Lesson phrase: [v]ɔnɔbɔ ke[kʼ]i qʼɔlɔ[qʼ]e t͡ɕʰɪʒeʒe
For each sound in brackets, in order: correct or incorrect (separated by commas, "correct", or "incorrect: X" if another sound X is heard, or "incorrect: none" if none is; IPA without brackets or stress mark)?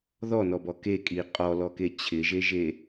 incorrect: ð, correct, incorrect: k